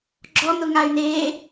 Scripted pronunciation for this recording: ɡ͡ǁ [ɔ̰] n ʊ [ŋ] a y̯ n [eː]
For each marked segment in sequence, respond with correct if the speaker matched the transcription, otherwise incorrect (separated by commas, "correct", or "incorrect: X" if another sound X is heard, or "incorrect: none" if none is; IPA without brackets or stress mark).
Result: incorrect: ɔ, correct, correct